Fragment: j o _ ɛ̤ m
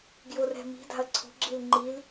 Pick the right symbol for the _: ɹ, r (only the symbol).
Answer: r